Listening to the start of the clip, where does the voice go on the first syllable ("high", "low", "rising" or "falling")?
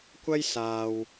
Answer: high